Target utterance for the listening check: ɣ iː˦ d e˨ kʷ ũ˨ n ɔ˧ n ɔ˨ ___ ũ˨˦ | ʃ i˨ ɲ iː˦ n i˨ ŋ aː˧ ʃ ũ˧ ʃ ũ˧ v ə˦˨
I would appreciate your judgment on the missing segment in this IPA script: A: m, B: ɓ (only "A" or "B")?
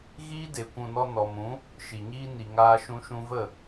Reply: A